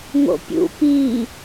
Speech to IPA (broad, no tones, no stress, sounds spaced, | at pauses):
ŋ o̰ pʲ ṵ p i